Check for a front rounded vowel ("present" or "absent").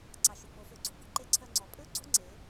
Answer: present